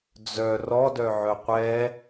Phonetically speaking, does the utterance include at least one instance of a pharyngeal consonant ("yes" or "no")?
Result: yes